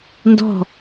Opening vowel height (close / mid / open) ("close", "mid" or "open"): mid